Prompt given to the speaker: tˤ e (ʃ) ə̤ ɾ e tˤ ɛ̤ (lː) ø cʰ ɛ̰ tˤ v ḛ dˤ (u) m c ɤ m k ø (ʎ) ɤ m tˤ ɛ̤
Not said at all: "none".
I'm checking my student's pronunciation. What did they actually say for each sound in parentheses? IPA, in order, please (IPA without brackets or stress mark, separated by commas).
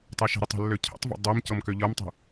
ʃ, lː, ø, ʎ